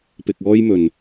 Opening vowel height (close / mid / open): close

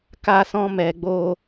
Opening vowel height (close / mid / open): open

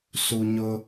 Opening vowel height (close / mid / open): close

